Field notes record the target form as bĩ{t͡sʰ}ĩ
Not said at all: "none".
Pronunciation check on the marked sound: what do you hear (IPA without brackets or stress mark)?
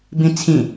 t͡sʰ